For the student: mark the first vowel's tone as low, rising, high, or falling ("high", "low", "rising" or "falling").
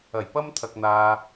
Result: low